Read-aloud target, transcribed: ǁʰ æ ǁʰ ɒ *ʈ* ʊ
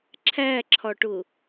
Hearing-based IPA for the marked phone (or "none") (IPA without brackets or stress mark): ʈ